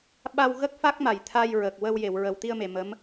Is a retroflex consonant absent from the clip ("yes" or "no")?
yes